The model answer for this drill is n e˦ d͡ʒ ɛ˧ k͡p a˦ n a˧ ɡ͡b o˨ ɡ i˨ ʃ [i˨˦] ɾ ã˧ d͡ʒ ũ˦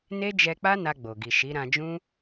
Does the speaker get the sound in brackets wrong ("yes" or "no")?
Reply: no